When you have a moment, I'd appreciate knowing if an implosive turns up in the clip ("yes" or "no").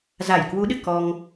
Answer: yes